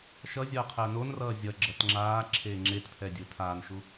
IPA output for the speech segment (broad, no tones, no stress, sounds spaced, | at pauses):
ʃ ʌ zʲ ʌː qʰ ɛ ə̯ n o n r ʌː zʲ ʌ ɡ͡ǁ ʌ t ŋ͡ǁ aː ǁʰ eː ŋ͡ǁ e t pʰ ɛ dʲ ɯ tʰ aː n ʃ u